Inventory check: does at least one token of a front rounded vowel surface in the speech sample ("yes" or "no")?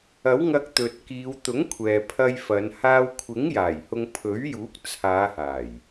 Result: no